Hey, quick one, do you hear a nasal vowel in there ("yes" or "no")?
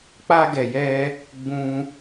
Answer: yes